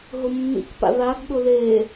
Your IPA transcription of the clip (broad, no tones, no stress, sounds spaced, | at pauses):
ɦ ʊ mː ḭ k p a̰ ð a ɡ ɠ ʊ ð e